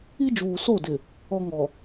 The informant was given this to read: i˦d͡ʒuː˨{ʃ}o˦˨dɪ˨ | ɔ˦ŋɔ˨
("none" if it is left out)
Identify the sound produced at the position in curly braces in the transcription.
s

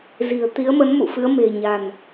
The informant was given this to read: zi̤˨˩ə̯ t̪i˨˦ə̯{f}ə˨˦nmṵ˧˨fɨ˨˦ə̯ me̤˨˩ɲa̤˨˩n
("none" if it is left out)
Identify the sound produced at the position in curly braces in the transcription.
m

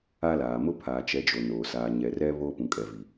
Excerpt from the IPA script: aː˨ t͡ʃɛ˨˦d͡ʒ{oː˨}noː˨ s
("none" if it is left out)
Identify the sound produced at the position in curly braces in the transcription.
o˨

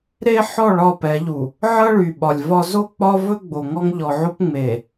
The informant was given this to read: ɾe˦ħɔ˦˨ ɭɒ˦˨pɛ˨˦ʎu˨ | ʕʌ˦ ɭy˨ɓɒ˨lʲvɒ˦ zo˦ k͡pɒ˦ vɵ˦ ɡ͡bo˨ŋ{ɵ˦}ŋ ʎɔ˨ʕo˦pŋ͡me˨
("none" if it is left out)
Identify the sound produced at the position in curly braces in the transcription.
ɔ˦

